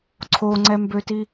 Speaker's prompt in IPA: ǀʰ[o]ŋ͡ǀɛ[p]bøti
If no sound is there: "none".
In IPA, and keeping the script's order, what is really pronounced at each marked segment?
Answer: o, m

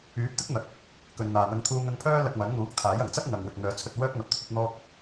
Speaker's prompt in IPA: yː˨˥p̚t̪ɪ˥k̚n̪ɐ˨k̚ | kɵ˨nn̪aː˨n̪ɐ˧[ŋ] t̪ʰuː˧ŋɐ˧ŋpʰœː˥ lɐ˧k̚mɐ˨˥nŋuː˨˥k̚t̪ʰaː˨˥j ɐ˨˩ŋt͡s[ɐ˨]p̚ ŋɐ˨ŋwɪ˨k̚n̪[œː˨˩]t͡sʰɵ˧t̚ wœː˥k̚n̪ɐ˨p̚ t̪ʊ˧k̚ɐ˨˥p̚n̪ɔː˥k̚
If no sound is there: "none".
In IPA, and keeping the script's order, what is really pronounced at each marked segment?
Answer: ŋ, ɐ˥, œː˨˧

